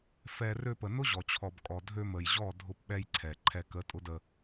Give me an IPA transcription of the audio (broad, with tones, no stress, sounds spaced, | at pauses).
f ɛ˧ r ø˧ p ə˨ n ʊ˦ ʑ ɔ˨ t͡ɕʰ ɔ˨ b kʼ ɔ˨ dʱ ø˧ m ə˨ j ʑ ɔ˦˨ dʱ ʊ˧ p ɓ ɛ˧ j ǀʰ ɛ˨ ǃʰ ɛ˧ k ə˨˦ tʼ ʊ˧ d ə˧